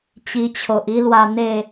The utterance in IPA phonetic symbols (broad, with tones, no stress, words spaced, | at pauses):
t͡ɕi˧t͡ɕʰo˨ʔi˦lwa˧ n̪e˥˧